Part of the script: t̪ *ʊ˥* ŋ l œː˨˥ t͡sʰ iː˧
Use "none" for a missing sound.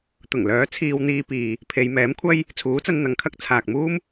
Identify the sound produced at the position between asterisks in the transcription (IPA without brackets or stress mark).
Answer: ʊ˨˩